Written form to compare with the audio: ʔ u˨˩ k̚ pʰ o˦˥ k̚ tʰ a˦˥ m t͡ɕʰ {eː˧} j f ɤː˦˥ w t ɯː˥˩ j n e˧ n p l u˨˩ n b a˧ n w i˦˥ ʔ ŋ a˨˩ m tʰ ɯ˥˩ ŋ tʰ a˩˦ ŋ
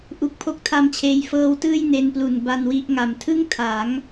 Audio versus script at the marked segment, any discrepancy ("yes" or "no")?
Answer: no